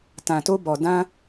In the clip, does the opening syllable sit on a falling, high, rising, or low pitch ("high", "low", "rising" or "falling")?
low